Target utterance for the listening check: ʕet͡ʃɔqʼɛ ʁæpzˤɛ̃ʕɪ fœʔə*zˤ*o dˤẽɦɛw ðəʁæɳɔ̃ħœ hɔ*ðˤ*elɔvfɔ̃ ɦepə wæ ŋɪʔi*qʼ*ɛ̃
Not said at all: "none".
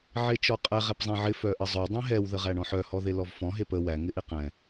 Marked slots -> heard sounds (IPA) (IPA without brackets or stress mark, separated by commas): zˤ, ð, q